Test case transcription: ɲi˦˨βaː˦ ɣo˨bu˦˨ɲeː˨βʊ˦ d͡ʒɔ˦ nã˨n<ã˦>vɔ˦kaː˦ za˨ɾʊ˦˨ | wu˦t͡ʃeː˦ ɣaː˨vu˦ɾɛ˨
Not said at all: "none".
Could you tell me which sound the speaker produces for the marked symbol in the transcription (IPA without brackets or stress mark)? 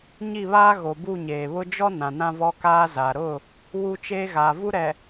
ã˦